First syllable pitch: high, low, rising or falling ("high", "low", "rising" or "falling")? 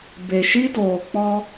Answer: low